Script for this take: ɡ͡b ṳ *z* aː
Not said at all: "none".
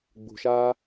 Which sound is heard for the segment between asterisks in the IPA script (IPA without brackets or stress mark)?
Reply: ʃ